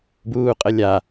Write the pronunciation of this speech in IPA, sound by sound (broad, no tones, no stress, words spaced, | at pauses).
buːqʼəlʲa